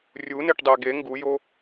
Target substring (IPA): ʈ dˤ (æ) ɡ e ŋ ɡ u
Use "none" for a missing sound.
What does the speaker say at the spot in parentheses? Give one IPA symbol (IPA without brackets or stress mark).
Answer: æ